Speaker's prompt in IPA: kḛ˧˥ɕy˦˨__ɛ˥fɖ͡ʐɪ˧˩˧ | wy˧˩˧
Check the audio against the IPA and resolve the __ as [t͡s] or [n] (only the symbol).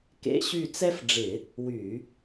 t͡s